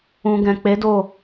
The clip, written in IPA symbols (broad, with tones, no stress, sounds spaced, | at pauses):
ũ˧ ɡ ɛ̃˨ k͡p e˨˦ d o˦˨